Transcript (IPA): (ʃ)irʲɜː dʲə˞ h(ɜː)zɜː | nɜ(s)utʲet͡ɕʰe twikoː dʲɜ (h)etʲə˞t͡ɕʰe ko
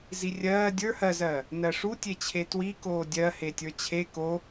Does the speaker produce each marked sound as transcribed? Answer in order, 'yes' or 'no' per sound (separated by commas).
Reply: no, no, no, yes